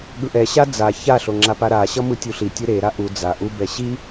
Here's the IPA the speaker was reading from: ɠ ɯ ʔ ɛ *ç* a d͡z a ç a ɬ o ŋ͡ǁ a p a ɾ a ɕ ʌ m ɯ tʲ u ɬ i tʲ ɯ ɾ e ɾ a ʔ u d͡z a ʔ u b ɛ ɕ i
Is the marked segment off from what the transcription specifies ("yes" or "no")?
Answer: yes